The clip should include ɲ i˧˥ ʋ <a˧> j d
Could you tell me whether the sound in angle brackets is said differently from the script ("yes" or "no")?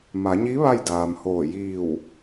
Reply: yes